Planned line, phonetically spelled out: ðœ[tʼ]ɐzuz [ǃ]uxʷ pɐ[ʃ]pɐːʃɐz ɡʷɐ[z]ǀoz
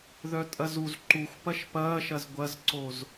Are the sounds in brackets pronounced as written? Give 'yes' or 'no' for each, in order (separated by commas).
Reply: yes, yes, yes, yes